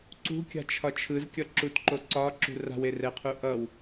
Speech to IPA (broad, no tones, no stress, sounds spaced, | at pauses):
ǀ ṳ kʲ a̤ t͡ʃʰ ɒ t͡ʃʰ ɯ z kʲ ʌ ǁ u t ǃ o ǀ ɒ ǁ ṳ r a̤ w e r ɛ qʰ u ʔ ʌ w